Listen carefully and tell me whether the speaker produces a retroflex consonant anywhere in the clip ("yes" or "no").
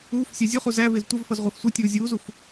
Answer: no